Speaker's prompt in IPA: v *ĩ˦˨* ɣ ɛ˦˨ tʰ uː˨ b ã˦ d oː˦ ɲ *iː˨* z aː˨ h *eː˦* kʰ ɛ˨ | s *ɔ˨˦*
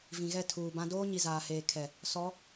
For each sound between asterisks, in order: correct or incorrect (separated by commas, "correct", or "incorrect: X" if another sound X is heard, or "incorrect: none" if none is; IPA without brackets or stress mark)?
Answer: incorrect: ĩ˨, incorrect: i˨, incorrect: eː˨, correct